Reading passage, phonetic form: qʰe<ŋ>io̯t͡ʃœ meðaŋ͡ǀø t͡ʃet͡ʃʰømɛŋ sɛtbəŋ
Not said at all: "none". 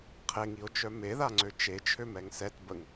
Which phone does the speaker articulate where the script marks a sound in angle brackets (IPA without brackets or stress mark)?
ŋ